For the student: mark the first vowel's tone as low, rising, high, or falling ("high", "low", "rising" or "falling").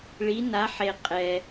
rising